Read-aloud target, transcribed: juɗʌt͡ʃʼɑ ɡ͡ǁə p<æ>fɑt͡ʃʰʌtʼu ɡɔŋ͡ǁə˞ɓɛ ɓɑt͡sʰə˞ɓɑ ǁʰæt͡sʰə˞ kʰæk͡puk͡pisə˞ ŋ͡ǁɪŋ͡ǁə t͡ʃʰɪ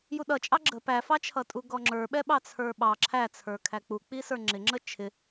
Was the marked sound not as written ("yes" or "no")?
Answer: no